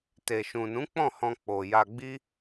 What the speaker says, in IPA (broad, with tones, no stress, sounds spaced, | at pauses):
t e˨ ʃ ũ˨ n ũ˨˦ k͡p ɔ̃˦˨ h ɔ̃˧ k͡p o˨ j a˧ ɡ͡b i˦